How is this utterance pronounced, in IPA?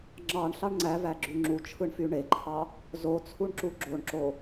ŋ͡ǁ ɑ ɳ ɬ ɑ ɳ ŋ͡ǀ æ v æ ɡ͡ǁ y ŋ͡ǁ u t͡ʃʰ ɯ ɳ f y ɳ e ǃʰ ɑ | z o t͡sʰ u ɳ ǁ u ɡ͡ǁ o ɳ ǁ o

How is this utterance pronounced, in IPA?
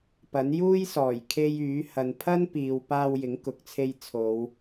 p ɐ˨˥ n j uː˥ j s ɔː˨˩ j kʰ e˧ j yː˨˥ h ɐ˨ n pʰ ɐ˥ n p iː˨ w p aː˧ w j ɪ˨˥ ŋ k ʊ˨ k̚ t͡sʰ e˧ j t͡sʰ o˨˧ w

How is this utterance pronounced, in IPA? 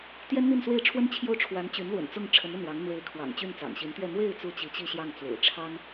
t̪ j ɛ˥ n n̪ i˥˧ n s w e˥˩ ɪ̯ ʈ͡ʂʰ w ə˥ n t͡ɕʰ j o˥˩ ʊ̯ ʈ͡ʂʰ w a˧˥ n t͡ɕ y˧˥ n l w ə̰˨˩ n t͡s ʊ˥˩ ŋ ʈ͡ʂʰ ə˧˥ n ə˥˩ n w ɑ˧˥ ŋ n̪ w e˧˥ ɪ̯ kʰ w ɑ̰˨˩ ŋ t͡ɕ y˥˩ n t͡s ɑ̰˨˩ ŋ ɕ i˧˥ n t̪ ɥ ɛ˥˧ n̪ w e˥˧ ɪ̯ t͡s u˥˩ t͡ɕ i˧˥ t͡ɕ i˥˧ ɕ j ɑ˥˩ ŋ t͡s w ḛ˨˩ ɪ̯ ʈ͡ʂʰ ɑ˥ ŋ

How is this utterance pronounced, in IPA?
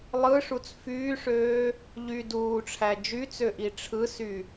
lˠ ɯ ʂ u t͡s f yː ʂ øː | ʎ y d uː ʈ͡ʂʰ æ d͡ʒ y t͡s ø ʔ i ʈ͡ʂʰ ɯ s y

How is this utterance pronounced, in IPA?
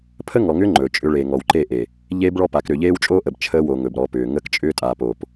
pʰ ə˦ ŋ ɔ˨ ŋ ʏː˦ ŋ͡ǃ ɵː˨ t͡ʃʼ ʏ˦ ɭ eː˨ ŋ ɔ˨ w ǃ eː˦˨ ʔ e˨ | ʎ eː˦ b ɭ ɔ˦ p a˨˦ k ɾ ʏː˨ ʎ eː˦ w t͡ʃʼ o˦ ʔ ə˨ b t͡ʃʰ əː˦ w o˨ ŋ ɵ˨ b ɾ ɔ˨˦ p ʏː˨ ŋ ə˦ k t͡ʃʼ ʏː˦ tʼ aː˨ p o˨ p

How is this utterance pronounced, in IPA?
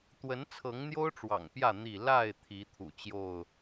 t̪ w ə˨˦ n t͡sʰ ɤ˨˦ ŋ n̪ j o˦ ʊ̯ ʈ͡ʂ w ɑ̰˨˩ ŋ p j ä˥˨ n̪ i˥˨ l a˥˨ ɪ̯ t̪ʰ i˨˦ t̪ʰ ṵ˨˩ t͡ɕ j o˥˨ ʊ̯

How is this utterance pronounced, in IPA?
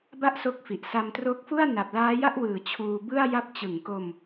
b a˥˩ ʔ s o˦˥ k̚ f i˨˩ ʔ s a˧ m t r o˦˥ k̚ f u˥˩ a̯ n a˨˩ p̚ l aː˦˥ j a˥˩ ʔ w ɯː˨˩ t͡ɕʰ uː˧ b ɯ˥˩ a̯ j a˥˩ p̚ t͡ɕ ɯ˨˩ ŋ k o˧ m

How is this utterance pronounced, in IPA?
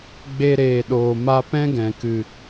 ɡ͡b e˦ ɾ eː˨ ɗ oː˨ m a˧ p ɛ̃˦ ɡ ɛ̃˨ k ɨ˨

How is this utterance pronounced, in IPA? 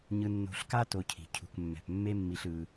ɲ ɯ˧ nː o̤˧ ɬ k a˦ t o˧ cʰ i̤˨ cʰ ṳ˨ k mː ɛ̤˨ p mː e˦ mː i˧ ɬ ɯ˧

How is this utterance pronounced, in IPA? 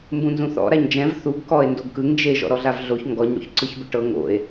m b ũ n z ũ θ ɔ̰ ɾ a ɲ d͡ʒ ɛ̃ v θ u ɡ k ɔ e̯ n d o ɡ k ɯ ŋ d͡ʒ e ʒ ɔ̰ ɾ ɔ ɮ a v ɮ o ç ŋ ɡ ɔ ɲ ɽ o̰ ç ǀ ɯ ç b ɯ ʈ ɤ ŋ o̰ e̯

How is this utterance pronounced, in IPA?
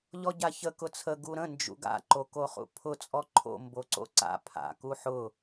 ʎ ɔ ɟ a ç ə k ʊ t͡sʰ ə ɡ u ɾ ə̃ n d͡ʒ ṵ ɡ a̰ ǃ o k o χ ṵ pʰ ʊ t͡sʼ ɔ ǃʰ o̰ m b o ǀ o̰ ǀ a̰ pʰ a̰ k u ħ ʊ

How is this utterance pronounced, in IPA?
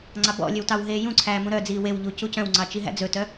ŋ͡ǀ ɑ b ɔ̰ lʲ ø w t ɑ w ɦ eː j ũ ǀʰ æː m ũ ɾ œ d͡z iː w e w ʎ u c u c œ̃ w ŋ͡ǀ ɑ t͡ʃ i ɦ æ̰ d͡z ɵ t œ

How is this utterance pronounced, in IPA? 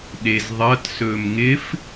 ɗ e z ðˤ ʌ t s ɵ m ŋ ɪ f

